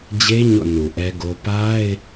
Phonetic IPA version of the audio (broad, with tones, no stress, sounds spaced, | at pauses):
d͡ʑ e˦ ɲ o̰˦˨ n u˨ ʔ ɛ˦ ɡ o˦ p a˦ ɪ̯